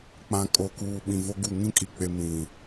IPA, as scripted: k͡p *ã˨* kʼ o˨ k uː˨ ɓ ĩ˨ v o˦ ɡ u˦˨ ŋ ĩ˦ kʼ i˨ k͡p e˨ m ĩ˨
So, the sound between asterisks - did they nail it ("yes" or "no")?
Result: yes